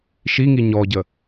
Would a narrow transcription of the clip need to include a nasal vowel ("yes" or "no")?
no